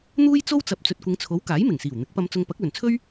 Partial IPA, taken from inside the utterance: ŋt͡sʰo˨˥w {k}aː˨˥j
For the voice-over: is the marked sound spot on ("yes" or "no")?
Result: yes